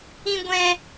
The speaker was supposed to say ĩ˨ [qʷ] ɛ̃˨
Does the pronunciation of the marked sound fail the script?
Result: yes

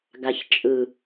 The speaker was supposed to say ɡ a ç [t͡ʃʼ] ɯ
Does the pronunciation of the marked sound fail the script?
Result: no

